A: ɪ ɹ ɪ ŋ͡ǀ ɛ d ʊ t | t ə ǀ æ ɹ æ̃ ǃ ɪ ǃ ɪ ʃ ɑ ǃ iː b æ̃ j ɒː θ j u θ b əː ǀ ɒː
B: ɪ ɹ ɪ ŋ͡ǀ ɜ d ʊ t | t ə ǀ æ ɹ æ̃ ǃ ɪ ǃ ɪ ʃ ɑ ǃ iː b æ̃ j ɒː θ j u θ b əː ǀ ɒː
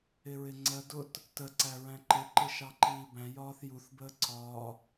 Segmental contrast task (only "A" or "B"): B